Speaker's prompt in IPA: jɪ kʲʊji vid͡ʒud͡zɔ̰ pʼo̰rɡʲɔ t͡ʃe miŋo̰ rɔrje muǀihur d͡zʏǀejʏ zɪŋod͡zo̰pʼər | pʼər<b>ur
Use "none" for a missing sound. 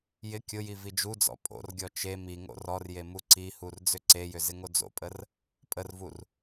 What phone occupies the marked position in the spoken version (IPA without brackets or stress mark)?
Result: v